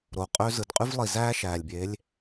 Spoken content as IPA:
ɾ o˨ qʼ ø˦ z ɯ˨ d qʼ y˦ v lˠ i˨ z æː˦ ʃ æː˨ lʲ bʲ eː˨˦ lʲ

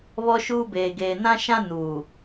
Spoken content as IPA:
β ɔ˦ ʃ uː˦ b eː˨ ɡ eː˨ n ã˦ ʃ ã˦ n uː˨

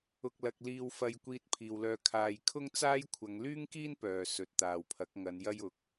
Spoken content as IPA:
ʊ˨ k̚ l ɐ˨ k̚ l iː˧ w f ɐ˨ j kʷ iː˧ t̚ pʰ iː˨ w l œː˧ kʰ aː˨ j kʰ ʊ˥ ŋ t͡s aː˥ j kʷʰ ɐ˨˧ ŋ l yː˥ ŋ k iː˥ n p œː˨ s ɵ˨ t̚ t̪ aː˨ w pʰ ɐ˨˥ k̚ ŋ ɐ˨˧ n j ɐ˥ j ʊ˨˥ k̚

